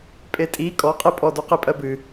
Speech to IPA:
pʼetʼi kʼɔqʼipʼɔdu qipʼɜbɨ

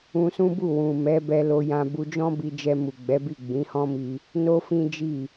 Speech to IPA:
ũ˧sũ˦bu˦˨ wũ˨mɛ˨˦ bɛ˧lo˧jã˧ bu˧d͡ʒɔ̃˦bi˧ d͡ʒɛ˧mu˨ɡ͡bɛ˨˦bi˦˨ ɡ͡bĩ˨˦hɔ̃˦mi˧ | no˦fĩ˦d͡ʒi˦˨

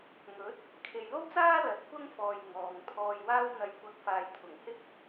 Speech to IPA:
ŋɵ˨˥t̚ | kʰe˨jlo˥wt͡saː˥ lɐ˨t̚kʷɐ˥ŋfɔː˨j ŋɔː˨ŋt̪ʰɔː˧jwaː˥w n̪ɐ˨˥j kʷɐ˧k̚ faː˨jt̪ʰʊ˨˩ŋhɪ˥k̚

